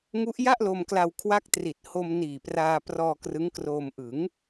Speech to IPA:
ŋu˦˥ʔja˥˩ʔlo˧mkla˧w kʰwa˦˥k̚tri˨˩t̚ ho˧m niː˨˩praː˧prɔː˧ krɯ˦˥ŋkroː˧m ʔɯ˩˦ŋ

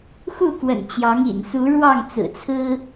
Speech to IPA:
xu˥˨kwə̰˨˩nt͡ɕjɑ˨˦ŋḭ˨˩n su˨˦ ɻwɑ˥˨ŋt͡sɹ̩˨˩ t͡sʰɹ̩˦

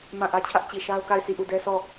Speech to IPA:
mã˦˨ʔä˦t͡ɕʰä˦ʔ t͡ɕi˨ʃa˦ʊ̯ka˦˨ɪ̯ si˦˨ʔu˦˨dɛ˦ sʰɔ˦˨

